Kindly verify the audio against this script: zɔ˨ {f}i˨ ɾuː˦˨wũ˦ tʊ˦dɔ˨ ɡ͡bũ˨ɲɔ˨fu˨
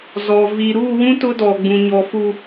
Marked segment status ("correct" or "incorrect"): incorrect